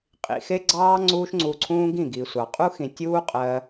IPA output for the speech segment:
qʼ ḭ˧ x e˦ ɡ͡ǀ ɑː˦ ŋ͡ǀ uː˦ ʃ ŋ͡ǀ u˧ ǀʰ ũː˦ ɡ ĩ˦˨ ɡ i˨ sʷ ɑ˨ qʼ u˦ x ĩ˨ tʲ uː˦ qʼ ɜ˧

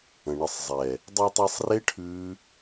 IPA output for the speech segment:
ə̃˨ ɳ ə˧ sˤ zˤ ɛ˨ | dˤ ʉ˧ tˤ ɛ˧ sˤ r e˦ ʈʰ ʉ˦

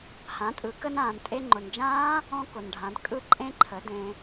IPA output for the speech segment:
h ã˩˧ tʼ ɯ˩˧ k ə˧ n ãː˩ n tʼ e˧ ŋ͡ǃ ʊ˩ n d͡ʒ ãː˦˥ | ɔ̃˧ k ʊ˩ n ɖʱ ã˩˧ d kʼ ɯ˦˥ ǃʼ ẽ˦˥ ǃʰ ə˩˧ d ẽ˩

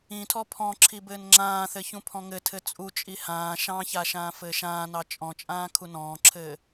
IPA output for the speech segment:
ĩ tʰ ɔ pʰ ɔ̃ ǁʰ i b ɘː n ŋ͡ǁ ãː θ ɘ ç ũ pʰ ɔ̃ ŋ ɘ tʰ ɘ t͡sʼ u t͡ʃʼ i h ãː ʃ ɑ̃ ç a ʃ ãː f ɘː ʃ ãː n ɑ t͡ʃʼ ɔ̃ t͡ʃʼ ãː kʰ u n ɔ̃ː ǁʰ ɘː

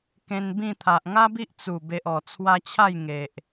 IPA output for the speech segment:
k ẽ˧ n b ĩ˥˧ t̪ʰ a˨ ʔ ŋ a˦ b i˦ ʔ t͡s u˨˩ b e˨ ʔ ɔ˨˩ t͡sʰ w a˧ t͡ɕʰ a˥˧ j ŋ e˨ ʔ

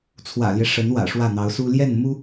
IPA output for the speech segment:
t͡sʰ w ä̰˨˩ l j ɛ˦ ʂ ə˧˥ n w ä̰˨˩ ʂ w ä˥˩ n̪ ɑ˧˥ ʊ̯ s u˥ l j ɛ˥˩ n m u˥

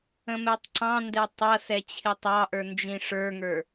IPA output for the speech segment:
ə̃ m ɛ tˤ ǀ ɑ̃ n d ɛ tˤ ʌ s ɛ t͡ɕʰ ɪ tˤ ɑ ʔ ə˞ n d͡ʒ ĩ ʂ ə˞ ŋ ə˞

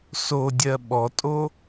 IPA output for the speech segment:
s o dʲ ɜ ɓ ɔ tʼ o

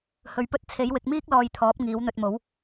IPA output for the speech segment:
h ɵ˧ ɥ p ɵ˥ t̚ t͡sʰ e˨˥ j w ɪ˨˥ k̚ m iː˥ k̚ l ɔː˧ j t̪ʰ ɔː˨˥ p̚ ŋ iː˨˥ w n̪ ɵ˧ t̚ m o˨˥ w

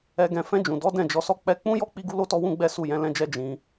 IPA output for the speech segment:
ɛ˧ ɡ ɛ̃˧ f ɛ̃˧ d͡ʒ ũ˨ d ɔ˨˦ d ɛ̃˦˨ d͡ʒ ɔ˧ s ɔ˦ k͡p ɛ˦ k͡p ũ˦ j ɔ˦ k͡p i˦ ɡ u˦ l o˦ t ɔ˦ w ũ˦ ɡ͡b ɛ˦ s u˦˨ j ɛ̃˨˦ l ɛ̃˦ d͡ʒ ɛ˦ d͡ʒ ĩ˧

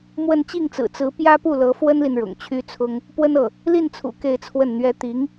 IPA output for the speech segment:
m w ə˥˧ n t͡ɕ i˥˩ ŋ t͡s ɹ̩˨˩ t͡s ɹ̩˧˥ p j ä˥ p u˥˩ l ɤ˧˥ f w ə˥ n l i˨ n ɻ ʊ̰˨˩ ŋ t͡ɕʰ y˥ t͡sʰ ʊ˥ ŋ | p w ə˥ n ɤ˥˩ | l i˥˩ n t͡sʰ ṵ˨˩ k e˥˧ ɪ̯ t͡sʰ w ə˥˩ n n̪ ɥ ɛ˥ t̪ i˧˥ ŋ

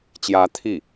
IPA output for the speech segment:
t͡ɕ j ä˧˥ t̪ʰ i˥˩

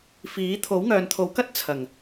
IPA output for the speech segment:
f iː˨˥ t̪ʰ o˨˥ w ŋ œː˨ n t̪ʰ o˨˥ w k ɐ˥ t̚ t͡sʰ ɐ˨˩ ŋ

